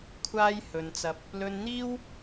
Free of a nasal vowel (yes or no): yes